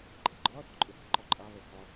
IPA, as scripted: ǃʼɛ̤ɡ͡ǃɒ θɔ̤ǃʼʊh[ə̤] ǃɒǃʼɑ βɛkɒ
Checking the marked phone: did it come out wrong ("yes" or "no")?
no